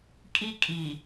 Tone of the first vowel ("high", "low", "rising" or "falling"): high